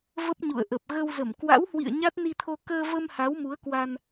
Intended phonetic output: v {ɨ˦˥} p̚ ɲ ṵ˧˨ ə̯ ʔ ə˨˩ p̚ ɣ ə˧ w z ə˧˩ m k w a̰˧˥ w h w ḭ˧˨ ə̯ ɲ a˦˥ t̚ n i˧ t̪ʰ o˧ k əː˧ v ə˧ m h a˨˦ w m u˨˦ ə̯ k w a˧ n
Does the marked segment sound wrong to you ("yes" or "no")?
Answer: yes